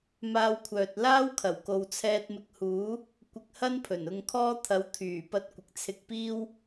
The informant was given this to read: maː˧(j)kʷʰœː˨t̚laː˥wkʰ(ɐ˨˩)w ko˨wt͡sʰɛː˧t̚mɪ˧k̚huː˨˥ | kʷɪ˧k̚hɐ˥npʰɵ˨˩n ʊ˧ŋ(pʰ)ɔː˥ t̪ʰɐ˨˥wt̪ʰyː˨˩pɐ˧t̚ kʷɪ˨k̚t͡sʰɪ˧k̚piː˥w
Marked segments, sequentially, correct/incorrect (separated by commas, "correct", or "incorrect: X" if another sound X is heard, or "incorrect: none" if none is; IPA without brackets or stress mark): incorrect: w, correct, incorrect: kʰ